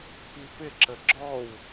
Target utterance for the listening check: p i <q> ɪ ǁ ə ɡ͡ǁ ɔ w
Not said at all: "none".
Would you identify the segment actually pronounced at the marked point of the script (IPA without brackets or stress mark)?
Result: p